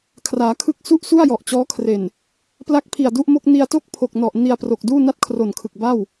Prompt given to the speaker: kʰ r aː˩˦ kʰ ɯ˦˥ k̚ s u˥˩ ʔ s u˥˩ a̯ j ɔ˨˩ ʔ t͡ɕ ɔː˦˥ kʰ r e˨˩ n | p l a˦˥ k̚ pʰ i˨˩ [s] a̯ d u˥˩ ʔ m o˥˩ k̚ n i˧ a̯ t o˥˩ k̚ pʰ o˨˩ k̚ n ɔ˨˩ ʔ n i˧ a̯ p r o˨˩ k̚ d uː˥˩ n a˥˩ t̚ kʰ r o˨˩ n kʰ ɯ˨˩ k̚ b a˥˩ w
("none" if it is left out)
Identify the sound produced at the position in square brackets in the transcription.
none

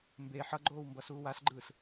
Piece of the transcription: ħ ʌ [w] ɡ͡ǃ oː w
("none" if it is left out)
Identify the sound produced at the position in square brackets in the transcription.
none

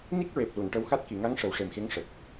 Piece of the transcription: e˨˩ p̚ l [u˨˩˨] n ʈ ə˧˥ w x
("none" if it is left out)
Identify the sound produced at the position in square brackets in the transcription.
u˨˩˨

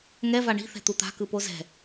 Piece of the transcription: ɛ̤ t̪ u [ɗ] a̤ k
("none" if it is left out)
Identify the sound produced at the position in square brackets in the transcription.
t̪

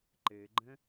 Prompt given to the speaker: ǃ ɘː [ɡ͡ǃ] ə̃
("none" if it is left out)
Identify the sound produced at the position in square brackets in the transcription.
ɡ͡ǃ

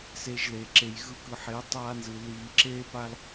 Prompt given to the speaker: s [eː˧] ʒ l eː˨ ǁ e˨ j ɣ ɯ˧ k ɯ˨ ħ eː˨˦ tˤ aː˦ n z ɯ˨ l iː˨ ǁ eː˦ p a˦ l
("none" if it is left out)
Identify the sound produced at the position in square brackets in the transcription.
eː˧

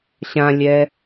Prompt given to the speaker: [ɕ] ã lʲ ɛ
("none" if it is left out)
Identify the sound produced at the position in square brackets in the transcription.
ɕ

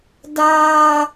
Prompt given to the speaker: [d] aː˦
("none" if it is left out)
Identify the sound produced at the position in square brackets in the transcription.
d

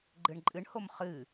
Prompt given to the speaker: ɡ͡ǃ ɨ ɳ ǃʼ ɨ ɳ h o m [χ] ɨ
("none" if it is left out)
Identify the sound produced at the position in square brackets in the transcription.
χ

